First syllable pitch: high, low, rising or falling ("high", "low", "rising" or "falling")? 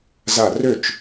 falling